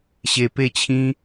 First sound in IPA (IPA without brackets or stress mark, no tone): ɕ